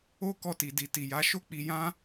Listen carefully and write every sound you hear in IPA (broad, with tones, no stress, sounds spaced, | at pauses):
o˦ k ɔ˧ t i˨ d i˨ t i˨ j a˨˦ ʃ o˦ k͡p i˧ j ã˦